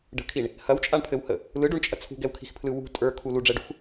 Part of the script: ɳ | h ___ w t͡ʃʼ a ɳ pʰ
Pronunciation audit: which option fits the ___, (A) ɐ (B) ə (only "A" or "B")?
A